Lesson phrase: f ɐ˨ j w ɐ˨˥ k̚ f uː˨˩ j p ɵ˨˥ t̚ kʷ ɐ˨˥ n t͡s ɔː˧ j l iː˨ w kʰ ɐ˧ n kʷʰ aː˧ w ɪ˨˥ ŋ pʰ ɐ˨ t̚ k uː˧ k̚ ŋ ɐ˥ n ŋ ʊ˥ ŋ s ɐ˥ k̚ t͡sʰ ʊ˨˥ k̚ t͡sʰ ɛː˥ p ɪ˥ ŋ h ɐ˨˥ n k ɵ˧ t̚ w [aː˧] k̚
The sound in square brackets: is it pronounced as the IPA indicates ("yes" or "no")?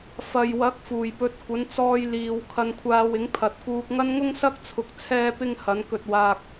yes